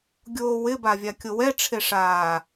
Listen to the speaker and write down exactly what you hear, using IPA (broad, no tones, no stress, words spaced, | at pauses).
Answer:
ɡʲoːwɪ bavʲakʲowɛ ʈ͡ʂʰeʂaː